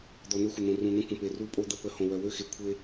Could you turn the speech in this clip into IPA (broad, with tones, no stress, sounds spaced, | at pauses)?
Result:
d̪ ɔ˨ n̪ ø˦ xʷ ə˨ n̪ õ˨ r ũ˨ n̪ ə̃˦ kʷ ə̃˨ p e˨ r u˦˨ pʼ o˦ d̪ ə˦ p ə˨˦ h õ˨ w œ˨ w ø˦ x e˨ kʷʰ e˦